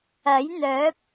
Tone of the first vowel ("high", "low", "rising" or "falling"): rising